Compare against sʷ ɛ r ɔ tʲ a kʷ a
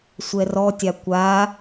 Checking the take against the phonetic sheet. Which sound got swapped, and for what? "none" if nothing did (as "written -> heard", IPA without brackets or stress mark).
none